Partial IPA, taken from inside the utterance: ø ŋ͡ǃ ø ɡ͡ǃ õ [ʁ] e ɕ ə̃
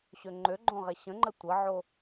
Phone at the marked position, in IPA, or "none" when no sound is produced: ʁ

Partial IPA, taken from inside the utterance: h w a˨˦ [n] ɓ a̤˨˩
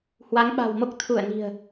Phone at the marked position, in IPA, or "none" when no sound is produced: ŋ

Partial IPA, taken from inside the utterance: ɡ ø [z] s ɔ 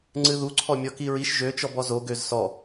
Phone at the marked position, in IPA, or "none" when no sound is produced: z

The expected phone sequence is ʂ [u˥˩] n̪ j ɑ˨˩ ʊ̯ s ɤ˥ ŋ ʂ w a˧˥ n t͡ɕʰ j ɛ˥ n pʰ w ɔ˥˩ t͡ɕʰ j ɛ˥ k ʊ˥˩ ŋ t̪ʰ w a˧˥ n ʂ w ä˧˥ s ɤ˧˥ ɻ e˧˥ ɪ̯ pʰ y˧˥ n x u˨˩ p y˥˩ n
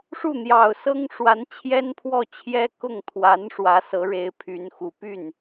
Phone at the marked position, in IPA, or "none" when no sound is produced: u˥˩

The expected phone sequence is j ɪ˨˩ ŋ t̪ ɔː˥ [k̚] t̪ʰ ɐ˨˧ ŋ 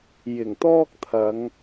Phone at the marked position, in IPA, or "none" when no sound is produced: k̚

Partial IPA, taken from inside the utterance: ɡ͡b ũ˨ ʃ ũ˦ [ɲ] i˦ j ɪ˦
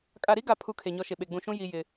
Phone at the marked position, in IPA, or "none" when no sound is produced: j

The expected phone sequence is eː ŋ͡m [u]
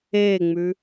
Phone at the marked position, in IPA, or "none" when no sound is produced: ʉ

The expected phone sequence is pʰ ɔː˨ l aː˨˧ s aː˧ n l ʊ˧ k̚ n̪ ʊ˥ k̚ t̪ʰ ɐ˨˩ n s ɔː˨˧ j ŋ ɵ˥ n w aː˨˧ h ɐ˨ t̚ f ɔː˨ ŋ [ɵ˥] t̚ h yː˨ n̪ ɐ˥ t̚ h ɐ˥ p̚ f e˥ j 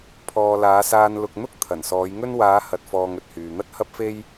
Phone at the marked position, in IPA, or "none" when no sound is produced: ɵ˨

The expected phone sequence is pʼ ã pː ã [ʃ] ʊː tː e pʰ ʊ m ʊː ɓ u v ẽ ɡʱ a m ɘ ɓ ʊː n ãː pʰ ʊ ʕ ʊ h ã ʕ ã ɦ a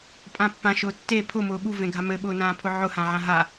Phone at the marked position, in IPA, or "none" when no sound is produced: ʃ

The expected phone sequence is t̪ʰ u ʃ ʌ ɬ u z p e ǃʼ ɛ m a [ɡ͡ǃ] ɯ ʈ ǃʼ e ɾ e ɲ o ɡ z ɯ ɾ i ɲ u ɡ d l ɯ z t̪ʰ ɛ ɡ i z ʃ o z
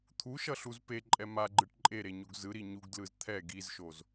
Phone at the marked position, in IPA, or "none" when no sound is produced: ɡ͡ǃ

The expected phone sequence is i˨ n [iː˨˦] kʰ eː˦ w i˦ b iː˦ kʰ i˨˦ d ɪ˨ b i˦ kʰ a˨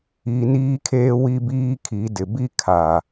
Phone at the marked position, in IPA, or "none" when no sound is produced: iː˦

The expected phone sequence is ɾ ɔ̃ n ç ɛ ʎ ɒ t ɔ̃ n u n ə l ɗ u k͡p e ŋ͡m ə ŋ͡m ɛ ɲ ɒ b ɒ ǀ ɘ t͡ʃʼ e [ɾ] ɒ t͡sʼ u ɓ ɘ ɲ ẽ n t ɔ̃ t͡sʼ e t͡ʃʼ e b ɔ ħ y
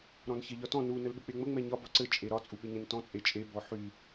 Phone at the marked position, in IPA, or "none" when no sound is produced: ɾ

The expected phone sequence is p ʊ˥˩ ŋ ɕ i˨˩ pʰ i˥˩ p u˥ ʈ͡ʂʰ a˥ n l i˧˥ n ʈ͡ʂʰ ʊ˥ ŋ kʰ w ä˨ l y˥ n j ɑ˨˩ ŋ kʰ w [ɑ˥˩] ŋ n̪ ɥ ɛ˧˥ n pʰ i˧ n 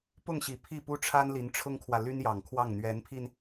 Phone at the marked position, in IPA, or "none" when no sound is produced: ɑ˥˩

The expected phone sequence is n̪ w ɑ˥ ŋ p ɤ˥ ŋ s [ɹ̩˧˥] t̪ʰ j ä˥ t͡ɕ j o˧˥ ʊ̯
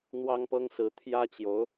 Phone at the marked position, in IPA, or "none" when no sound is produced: ɹ̩˧˥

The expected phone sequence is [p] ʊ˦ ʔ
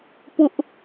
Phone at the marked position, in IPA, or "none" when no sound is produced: p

